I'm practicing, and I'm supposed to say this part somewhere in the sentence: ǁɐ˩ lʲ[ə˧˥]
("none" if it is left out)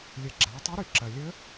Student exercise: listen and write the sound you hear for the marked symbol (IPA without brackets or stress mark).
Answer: ə˧˥